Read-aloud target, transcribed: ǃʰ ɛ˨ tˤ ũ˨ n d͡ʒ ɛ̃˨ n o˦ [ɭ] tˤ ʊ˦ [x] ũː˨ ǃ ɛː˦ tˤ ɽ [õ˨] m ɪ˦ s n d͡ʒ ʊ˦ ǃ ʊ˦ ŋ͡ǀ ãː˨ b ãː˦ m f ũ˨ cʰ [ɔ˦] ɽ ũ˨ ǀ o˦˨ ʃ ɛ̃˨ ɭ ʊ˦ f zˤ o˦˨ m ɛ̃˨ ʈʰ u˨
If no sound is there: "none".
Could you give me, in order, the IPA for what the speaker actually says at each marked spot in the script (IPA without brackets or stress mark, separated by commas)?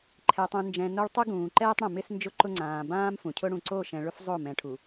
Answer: ɭ, ɡ, õ˨, ʊ˦